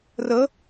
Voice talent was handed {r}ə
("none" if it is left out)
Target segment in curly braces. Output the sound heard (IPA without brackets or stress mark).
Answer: r